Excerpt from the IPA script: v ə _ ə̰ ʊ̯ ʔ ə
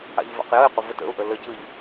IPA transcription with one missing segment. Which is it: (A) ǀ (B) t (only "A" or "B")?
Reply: B